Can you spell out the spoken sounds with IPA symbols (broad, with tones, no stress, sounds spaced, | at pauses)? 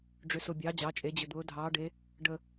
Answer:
ɖ͡ʐ ʏ˨˦ s ʊ˨ bʲ ɑː˨˦ d͡ʑ ɑ˨˦ t͡ʃʼ e˨˦ d͡ʑ ʏ˨ d̪ ʊː˨˦ dʱ ɑː˨˦ ɖ e˨˦ | ɖ ə˨